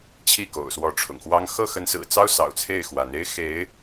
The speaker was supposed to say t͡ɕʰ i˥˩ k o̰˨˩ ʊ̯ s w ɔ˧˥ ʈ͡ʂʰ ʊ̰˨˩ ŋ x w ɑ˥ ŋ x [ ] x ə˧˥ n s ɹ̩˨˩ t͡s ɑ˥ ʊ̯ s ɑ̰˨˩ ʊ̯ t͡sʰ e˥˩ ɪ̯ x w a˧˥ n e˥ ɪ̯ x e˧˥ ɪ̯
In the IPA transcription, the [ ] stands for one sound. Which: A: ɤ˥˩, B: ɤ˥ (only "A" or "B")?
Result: A